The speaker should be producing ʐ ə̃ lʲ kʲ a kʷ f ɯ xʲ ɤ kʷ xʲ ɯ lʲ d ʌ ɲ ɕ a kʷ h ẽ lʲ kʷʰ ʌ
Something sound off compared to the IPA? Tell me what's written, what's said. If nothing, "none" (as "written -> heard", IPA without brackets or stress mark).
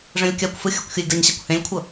none